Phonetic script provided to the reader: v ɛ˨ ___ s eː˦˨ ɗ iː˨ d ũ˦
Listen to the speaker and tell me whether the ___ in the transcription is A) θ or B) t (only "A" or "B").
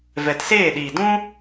B